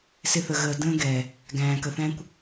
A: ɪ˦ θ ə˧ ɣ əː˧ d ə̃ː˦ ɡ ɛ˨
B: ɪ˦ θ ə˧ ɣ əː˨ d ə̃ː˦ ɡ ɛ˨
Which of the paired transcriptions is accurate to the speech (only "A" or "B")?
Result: A